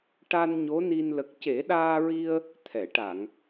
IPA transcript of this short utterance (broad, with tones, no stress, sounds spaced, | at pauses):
ʈ a˧ n ɲ o˧˥ n i˧ n l ə˨˩ k̚ c e˨˩˦ ɗ aː˧ ɹ i˧ ə̯ | t̪ʰ ɛ˨˩˨ ʈ a˨˩˨ ŋ